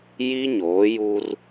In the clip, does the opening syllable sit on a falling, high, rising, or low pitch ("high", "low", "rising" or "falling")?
high